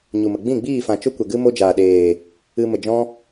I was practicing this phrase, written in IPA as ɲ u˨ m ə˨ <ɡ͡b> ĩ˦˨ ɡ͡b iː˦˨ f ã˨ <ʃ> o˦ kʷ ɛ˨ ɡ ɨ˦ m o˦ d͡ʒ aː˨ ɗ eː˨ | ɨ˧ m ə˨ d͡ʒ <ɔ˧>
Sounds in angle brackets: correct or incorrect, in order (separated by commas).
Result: correct, incorrect, incorrect